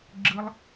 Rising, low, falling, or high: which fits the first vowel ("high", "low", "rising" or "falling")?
high